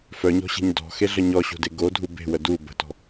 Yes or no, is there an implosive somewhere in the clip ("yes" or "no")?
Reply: no